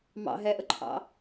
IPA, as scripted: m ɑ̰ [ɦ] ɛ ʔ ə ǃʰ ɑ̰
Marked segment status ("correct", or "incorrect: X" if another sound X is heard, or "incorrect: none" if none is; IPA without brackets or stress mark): correct